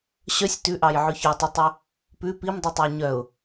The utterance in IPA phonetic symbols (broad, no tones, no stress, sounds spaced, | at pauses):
ɕ œ sʲ t ʉ ʔ ɑ j ʕ ʉ ç ø tˤ i tˤ ɵ | p ʉ p i m dˤ ʉ tˤ ɵ ʊ̯ ɲ œ ʊ̯